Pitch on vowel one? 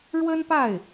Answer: high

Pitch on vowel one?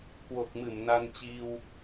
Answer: low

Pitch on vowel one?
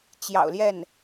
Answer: low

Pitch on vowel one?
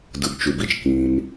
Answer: low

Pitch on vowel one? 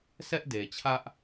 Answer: high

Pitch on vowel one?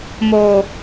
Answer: low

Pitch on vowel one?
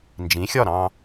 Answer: rising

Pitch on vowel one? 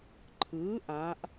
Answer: rising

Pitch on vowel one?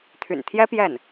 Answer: low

